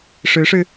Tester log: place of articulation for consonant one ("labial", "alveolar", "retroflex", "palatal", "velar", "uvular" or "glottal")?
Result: retroflex